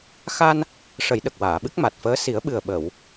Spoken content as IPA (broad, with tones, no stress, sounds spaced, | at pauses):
x a˧ n | ʂ ə˨˩˦ j ɗ ə˨˩ k̚ w aː˨˩˨ ɓ ɨ˦˥ k̚ m a˨˩ t̚ f əː˧˥ s i˨˩˦ ə̯ ɓ ɨ˨˩ ə̯ ɓ ə˨˩˨ w